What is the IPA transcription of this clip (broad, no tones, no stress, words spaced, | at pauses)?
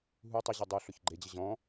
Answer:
ɦu tˤʊʑʌ dˤuɬʊç ɡ͡ǃed͡ʑə ʑɔ̃